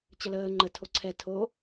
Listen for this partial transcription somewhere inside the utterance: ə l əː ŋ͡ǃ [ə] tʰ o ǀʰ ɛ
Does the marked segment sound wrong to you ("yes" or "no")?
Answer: no